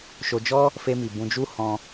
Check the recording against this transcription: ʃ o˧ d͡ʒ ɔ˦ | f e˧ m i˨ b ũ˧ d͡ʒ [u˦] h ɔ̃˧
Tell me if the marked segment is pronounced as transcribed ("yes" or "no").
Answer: yes